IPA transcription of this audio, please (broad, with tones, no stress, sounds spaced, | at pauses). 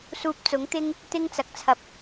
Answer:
s uː˧ p̚ t͡s ʊ˨˥ ŋ t̪ ɪ˥ ŋ | t̪ ɪ˥ ŋ t͡s ɐ˨ k̚ t͡sʰ ɐ˧ p̚